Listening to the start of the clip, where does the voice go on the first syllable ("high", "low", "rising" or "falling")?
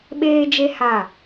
high